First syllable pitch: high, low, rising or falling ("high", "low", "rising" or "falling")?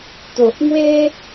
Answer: low